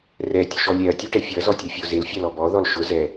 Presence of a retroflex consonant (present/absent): present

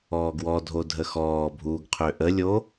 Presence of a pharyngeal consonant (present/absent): absent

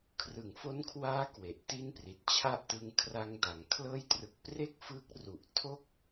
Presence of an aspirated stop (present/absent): present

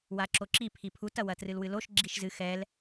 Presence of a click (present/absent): present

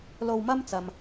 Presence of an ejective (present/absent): absent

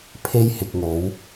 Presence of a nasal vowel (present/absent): absent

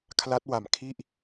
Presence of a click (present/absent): absent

